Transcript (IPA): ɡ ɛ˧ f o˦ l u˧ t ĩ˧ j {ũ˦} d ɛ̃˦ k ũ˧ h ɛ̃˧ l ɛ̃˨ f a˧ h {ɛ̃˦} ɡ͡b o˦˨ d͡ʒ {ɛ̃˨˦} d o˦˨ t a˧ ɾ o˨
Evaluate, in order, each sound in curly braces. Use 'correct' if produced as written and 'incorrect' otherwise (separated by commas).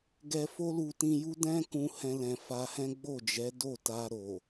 incorrect, correct, incorrect